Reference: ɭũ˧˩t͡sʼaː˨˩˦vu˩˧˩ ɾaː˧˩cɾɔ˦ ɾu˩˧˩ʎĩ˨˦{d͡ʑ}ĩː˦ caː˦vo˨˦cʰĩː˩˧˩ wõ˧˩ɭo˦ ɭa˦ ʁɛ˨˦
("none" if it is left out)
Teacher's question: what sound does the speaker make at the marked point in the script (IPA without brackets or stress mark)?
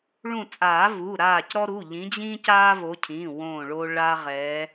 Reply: d͡ʑ